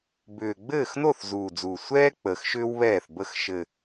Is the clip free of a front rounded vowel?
no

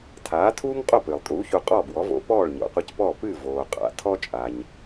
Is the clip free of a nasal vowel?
yes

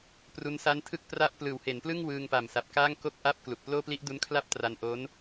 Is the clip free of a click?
yes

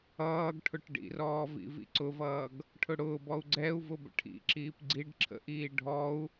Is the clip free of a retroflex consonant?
no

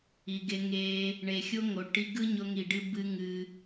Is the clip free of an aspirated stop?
yes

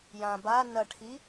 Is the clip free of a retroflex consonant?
no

